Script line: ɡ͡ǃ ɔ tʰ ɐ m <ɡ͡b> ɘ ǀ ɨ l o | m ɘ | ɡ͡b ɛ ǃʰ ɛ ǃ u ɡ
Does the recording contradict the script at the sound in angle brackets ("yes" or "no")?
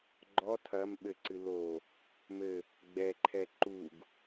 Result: yes